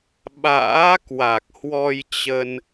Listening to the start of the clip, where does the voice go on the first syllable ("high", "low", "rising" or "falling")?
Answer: rising